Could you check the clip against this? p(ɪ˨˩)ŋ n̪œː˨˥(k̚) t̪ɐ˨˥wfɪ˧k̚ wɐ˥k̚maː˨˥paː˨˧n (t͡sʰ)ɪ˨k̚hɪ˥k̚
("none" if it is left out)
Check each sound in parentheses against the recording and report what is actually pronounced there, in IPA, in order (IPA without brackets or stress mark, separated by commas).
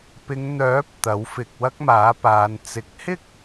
ɪ˨˧, p̚, t͡s